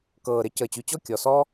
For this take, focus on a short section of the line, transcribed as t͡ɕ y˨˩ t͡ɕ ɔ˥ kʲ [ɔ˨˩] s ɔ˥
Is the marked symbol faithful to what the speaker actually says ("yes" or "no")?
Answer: yes